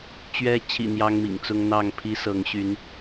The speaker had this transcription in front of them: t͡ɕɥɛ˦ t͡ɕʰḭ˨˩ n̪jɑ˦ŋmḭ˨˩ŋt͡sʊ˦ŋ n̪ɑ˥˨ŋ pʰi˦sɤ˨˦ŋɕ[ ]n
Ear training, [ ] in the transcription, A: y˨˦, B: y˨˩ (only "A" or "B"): A